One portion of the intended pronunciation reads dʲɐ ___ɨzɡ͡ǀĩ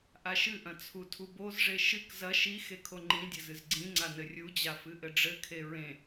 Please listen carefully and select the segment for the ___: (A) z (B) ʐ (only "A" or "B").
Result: A